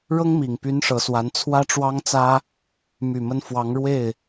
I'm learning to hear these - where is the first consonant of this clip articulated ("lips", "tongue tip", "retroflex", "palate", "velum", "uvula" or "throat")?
retroflex